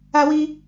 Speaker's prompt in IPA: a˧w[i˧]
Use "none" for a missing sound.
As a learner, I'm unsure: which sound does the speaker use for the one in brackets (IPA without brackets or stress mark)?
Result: i˧